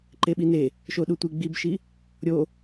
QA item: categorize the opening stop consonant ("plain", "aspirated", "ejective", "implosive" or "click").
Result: click